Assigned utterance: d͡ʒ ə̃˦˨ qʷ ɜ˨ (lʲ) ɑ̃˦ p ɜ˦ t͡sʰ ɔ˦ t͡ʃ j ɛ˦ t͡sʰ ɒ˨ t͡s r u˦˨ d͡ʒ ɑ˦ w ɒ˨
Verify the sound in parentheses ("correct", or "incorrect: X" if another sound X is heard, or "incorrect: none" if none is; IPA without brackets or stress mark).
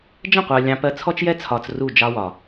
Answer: correct